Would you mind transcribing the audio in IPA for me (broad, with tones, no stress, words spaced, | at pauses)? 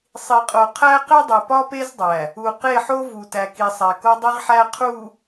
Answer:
sˤi˨qʼo˨ qʰæ˦ qe˦dˤe˨pɒ˦ pe˦zdˤæ˨ | u˨qe˦˨ħo˦ vu˨tæ˨ki˨sˤæ˨ ko˦dˤi˦ʁħæ˦ qʰu˨